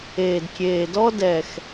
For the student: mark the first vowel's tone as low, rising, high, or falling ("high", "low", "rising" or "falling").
low